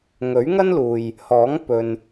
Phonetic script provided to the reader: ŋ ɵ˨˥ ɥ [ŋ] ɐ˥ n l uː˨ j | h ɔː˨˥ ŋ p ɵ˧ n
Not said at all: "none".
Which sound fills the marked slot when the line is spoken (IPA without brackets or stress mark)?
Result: ŋ